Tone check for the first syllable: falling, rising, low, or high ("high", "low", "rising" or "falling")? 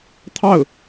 falling